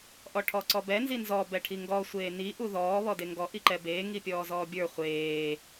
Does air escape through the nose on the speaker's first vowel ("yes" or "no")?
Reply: no